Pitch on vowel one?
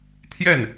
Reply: falling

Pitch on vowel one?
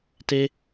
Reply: high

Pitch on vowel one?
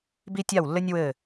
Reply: high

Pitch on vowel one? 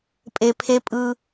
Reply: low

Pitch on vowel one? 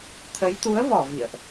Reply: rising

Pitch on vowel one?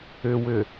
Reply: low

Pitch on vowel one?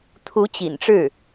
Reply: rising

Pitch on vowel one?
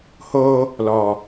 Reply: high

